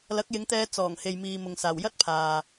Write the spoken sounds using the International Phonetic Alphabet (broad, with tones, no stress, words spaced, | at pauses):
lɐ˨˥k̚jɪ˨˧ŋt̪ɛː˧ t͡sɔː˨˩ŋ he˨jmiː˨mʊ˨ŋ saː˨˩wjɐ˥t̚pʰaː˨